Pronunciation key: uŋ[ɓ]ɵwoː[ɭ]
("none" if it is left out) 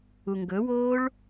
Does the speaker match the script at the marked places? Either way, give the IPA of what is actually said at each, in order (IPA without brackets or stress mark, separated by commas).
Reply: ɡ, ɭ